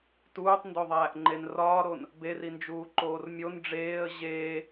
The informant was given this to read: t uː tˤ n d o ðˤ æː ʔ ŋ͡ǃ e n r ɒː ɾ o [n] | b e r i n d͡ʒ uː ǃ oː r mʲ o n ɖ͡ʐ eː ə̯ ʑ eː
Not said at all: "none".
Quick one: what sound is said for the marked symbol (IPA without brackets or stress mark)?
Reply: n